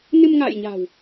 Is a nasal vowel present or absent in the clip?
absent